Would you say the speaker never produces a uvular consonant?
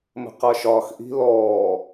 no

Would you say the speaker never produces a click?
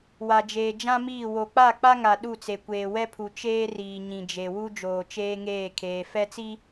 yes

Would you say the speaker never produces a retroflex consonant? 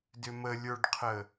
no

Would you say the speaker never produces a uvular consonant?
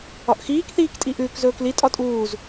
yes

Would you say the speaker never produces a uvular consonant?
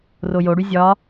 yes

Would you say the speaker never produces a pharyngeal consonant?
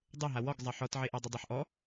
no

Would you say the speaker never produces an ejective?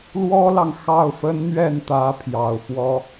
yes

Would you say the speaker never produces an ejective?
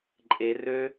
no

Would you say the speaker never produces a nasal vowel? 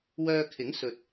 yes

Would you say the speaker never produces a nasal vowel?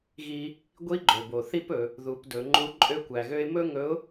yes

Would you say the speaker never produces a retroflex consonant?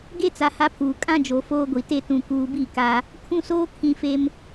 yes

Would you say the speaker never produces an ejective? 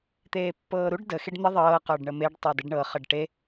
yes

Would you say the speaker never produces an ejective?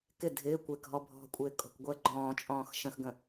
no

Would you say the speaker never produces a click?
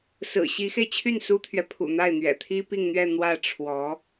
yes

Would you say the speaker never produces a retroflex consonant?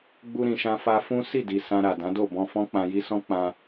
yes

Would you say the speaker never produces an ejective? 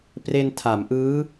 yes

